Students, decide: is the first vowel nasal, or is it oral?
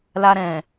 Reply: oral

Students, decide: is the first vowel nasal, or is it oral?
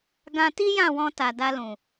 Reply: nasal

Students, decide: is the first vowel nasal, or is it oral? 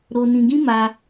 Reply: oral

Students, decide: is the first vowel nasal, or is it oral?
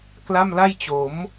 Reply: oral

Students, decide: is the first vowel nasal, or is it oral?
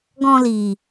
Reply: nasal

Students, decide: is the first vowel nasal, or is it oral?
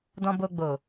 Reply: nasal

